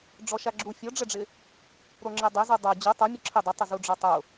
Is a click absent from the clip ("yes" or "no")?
no